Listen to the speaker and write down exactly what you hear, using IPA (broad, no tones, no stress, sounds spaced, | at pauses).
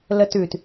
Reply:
l ə t ʉ t